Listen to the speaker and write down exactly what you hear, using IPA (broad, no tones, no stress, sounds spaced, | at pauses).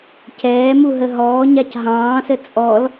c ɛː m u ɦ ə ɦ ɔː ɲ a c ɦ ɑ̃ː s ə t͡sʼ ɔ l